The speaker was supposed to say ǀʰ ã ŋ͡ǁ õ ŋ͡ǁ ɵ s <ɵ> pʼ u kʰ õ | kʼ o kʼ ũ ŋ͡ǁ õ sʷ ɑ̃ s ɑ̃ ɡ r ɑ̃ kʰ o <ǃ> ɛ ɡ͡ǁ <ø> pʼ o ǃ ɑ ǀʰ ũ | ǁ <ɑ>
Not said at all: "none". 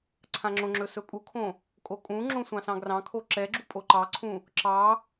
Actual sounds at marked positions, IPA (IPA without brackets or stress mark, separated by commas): ɵ, ǁ, u, ɑ